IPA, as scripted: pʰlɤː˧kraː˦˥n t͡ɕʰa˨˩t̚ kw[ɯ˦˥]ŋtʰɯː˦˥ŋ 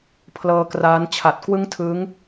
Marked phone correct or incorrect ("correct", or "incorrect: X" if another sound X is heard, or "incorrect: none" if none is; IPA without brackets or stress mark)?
incorrect: ɯ˥˩